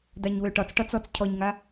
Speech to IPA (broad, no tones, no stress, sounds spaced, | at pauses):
d a ɲ w ø ʈ ɒ t͡s ʈ ɒ t͡s ɔ t͡s cʰ ɔ ɲ ŋ a